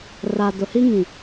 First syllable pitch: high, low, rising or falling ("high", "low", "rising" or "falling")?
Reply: low